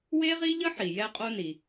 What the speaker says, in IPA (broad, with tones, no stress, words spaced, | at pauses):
we˥ʁi˥ʎə˥ħi˩ jɛ˥qʼo˥ni˩